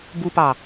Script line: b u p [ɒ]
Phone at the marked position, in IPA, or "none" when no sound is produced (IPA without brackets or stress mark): ɑ